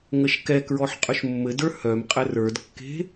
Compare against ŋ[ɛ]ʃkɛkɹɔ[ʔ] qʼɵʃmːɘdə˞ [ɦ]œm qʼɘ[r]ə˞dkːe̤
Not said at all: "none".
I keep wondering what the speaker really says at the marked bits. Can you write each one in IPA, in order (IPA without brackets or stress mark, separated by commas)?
ə, ħ, h, r